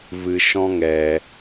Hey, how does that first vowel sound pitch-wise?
low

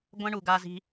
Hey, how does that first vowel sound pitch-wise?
high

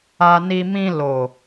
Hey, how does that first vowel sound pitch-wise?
low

